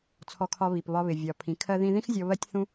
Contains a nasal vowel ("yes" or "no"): yes